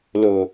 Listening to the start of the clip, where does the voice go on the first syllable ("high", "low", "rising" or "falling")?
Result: low